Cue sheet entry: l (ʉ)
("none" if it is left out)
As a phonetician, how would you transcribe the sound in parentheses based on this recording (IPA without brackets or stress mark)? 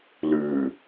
ʉ